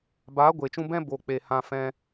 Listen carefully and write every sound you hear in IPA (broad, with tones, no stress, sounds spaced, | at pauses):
b aː˨˦ ɡʷ eː˨ t͡ʃ ũ˧ b ɛ̃˦ b o˨ k͡p e˨ h ã˧ f ɛ̃˦